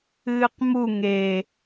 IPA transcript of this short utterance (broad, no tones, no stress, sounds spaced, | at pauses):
ɨː q m u ŋ e